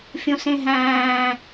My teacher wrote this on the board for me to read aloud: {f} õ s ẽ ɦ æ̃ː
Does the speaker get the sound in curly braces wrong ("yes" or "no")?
yes